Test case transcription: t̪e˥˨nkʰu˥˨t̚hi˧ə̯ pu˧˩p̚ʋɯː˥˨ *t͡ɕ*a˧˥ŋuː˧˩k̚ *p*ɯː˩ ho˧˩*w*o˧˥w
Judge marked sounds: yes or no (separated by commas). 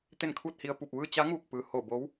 yes, yes, no